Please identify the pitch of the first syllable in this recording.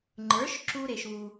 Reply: rising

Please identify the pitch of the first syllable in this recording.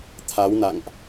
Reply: rising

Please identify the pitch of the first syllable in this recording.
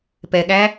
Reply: low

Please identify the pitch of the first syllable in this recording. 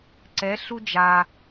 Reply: rising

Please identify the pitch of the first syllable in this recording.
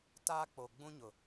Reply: high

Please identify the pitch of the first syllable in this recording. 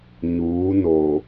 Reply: rising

